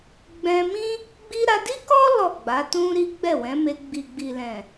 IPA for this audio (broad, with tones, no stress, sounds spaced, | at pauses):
ɡ͡b ɛ̃˧ m ĩ˦ | ɡ͡b i˦ ɾ a˧ d i˦ k ɔ˦ l ɔ˦˨ ɡ͡b a˨˦ t ũ˦ ɾ i˦ ɡ͡b ɛ˦˨ w ɛ̃˨˦ m e˧ ɡ͡b i˨ ɡ͡b i˨ l ɛ̃˨